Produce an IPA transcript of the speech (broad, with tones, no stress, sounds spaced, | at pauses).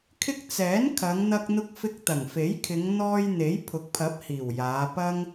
kʰ ɪ˧ k̚ t͡s ɛː˨˥ n kʰ ɐ˨˧ ŋ n̪ ɐ˧ k̚ n̪ ʊ˧ k̚ f ɪ˧ k̚ t̪ ɐ˨˩ ŋ f e˨˥ j kʰ ɪ˨˧ ŋ n̪ ɔː˧ j n̪ e˨˥ j pʰ ʊ˨˥ k̚ pʰ ɐ˨˥ p̚ h iː˨˩ w j aː˨˧ p ɐ˥ ŋ